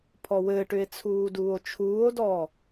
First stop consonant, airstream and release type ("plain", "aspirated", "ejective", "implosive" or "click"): aspirated